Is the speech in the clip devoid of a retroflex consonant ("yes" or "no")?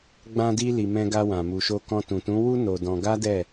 yes